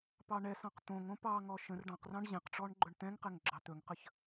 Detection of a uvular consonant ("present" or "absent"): present